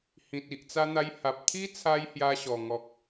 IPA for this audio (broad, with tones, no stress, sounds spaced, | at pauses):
h ĩ˨ t̚ i˨ ʔ t͡s a˧ n̪ a˧ j h a˨ p̚ t̪ʰ i˦ t͡sʰ a˧ j h j a˧ ɕ ɔ˨˩ ŋ ɔ˨ k̚